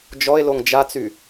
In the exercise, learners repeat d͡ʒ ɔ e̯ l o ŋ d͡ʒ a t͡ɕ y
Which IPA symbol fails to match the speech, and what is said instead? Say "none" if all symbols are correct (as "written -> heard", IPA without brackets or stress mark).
t͡ɕ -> t͡s